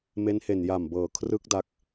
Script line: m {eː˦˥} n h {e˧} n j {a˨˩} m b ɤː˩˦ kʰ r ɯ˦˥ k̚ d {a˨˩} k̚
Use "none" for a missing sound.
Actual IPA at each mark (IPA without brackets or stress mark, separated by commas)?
e˦˥, e˨˩, a˨˩, a˦˥